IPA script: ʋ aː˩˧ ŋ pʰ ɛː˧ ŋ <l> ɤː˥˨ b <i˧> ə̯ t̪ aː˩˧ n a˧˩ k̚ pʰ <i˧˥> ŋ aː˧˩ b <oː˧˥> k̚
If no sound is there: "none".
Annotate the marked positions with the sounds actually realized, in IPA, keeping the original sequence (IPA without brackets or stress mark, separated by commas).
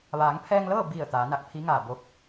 l, i˧˩, i˧˥, o˧˥